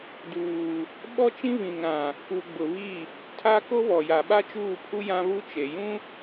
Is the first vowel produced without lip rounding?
no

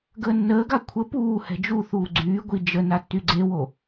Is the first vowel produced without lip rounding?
yes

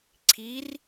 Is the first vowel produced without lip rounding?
yes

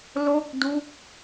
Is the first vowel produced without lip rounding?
no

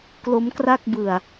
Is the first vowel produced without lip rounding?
no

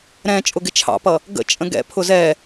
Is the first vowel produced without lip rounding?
yes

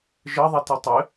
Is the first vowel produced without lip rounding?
yes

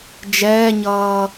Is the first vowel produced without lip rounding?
yes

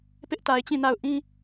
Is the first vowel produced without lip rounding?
yes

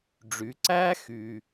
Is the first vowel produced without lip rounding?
no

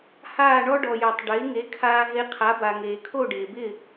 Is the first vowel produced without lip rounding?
yes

